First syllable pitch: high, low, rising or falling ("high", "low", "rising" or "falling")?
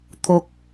low